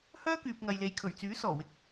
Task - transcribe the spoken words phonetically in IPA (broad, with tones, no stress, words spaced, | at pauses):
hœː˥kyː˨p̚ŋɐ˨jle˨j kʰɵ˨˩ɥt͡syː˨˥sɔː˨˩wɪ˨˥k̚